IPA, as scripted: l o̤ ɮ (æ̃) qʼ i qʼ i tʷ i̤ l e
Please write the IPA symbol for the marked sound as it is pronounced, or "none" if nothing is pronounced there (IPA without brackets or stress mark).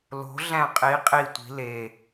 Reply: æ̃